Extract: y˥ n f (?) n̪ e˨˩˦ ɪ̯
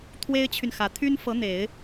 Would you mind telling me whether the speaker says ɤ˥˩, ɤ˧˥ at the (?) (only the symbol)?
ɤ˧˥